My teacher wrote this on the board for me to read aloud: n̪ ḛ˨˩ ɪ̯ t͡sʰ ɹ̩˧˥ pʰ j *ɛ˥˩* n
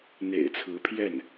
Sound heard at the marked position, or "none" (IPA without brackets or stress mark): ɛ˥˩